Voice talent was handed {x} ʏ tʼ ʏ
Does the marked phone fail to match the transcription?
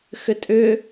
no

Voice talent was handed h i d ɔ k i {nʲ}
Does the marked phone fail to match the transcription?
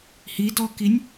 no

